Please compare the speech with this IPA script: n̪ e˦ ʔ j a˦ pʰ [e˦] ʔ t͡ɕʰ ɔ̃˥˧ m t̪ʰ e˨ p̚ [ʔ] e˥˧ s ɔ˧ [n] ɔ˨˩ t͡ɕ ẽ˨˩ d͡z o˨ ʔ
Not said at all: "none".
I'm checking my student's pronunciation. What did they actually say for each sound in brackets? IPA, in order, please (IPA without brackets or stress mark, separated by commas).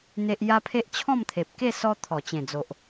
e˦, k, t̪ʰ